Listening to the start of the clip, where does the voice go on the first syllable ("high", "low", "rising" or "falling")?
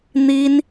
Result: high